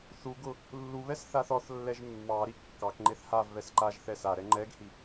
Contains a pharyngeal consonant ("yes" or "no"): no